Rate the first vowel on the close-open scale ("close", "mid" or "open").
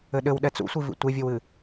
mid